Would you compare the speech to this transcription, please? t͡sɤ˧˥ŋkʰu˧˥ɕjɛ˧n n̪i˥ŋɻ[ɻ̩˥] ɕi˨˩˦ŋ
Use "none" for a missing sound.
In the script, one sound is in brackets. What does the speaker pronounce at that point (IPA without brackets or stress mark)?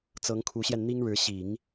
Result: ɻ̩˧˥